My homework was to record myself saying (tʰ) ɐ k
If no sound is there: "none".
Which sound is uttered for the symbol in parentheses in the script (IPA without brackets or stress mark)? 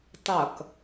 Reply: tˤ